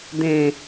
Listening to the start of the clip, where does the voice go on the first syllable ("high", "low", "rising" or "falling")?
low